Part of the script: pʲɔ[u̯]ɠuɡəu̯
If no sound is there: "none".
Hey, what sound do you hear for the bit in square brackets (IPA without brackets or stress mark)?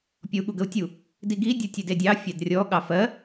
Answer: u̯